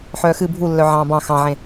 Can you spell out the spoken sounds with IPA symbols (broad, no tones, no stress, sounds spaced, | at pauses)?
ħ œː x ɨ bʱ u lː œ ʕ ɑ̃ː b ɑ̃ x ɑ̃ ʕ ẽ